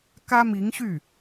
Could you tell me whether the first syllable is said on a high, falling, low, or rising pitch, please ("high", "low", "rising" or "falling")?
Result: high